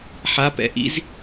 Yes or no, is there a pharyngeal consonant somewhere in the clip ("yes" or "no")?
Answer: yes